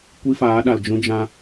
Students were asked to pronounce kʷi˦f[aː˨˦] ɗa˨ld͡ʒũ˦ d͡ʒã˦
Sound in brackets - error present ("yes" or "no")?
no